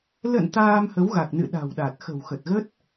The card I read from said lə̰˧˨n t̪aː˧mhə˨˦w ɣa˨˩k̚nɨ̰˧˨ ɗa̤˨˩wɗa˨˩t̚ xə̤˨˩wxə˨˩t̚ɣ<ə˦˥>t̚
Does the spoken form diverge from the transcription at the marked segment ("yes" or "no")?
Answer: no